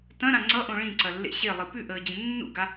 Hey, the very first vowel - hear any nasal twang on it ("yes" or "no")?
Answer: yes